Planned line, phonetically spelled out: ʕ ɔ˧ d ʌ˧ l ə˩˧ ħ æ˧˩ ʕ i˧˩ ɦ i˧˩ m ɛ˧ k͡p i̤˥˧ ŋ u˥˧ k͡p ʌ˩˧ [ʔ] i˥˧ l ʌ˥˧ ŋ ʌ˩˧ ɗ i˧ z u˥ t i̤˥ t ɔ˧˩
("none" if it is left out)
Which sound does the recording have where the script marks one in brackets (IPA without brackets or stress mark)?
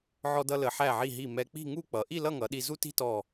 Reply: ʔ